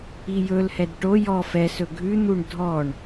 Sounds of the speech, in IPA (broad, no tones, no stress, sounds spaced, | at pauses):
i j ɵ l h ɛ d ʈ o j ɔ f ɛ s ɵ ɡʱ ʉ n̪ u ɳ dʱ ɔ ɳ